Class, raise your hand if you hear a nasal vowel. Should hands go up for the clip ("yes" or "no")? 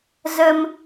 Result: no